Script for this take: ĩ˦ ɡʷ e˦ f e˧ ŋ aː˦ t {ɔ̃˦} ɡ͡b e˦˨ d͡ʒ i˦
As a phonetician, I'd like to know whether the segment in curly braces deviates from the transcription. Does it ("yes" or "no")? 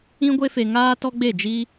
yes